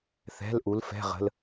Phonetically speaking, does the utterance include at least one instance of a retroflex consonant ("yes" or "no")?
no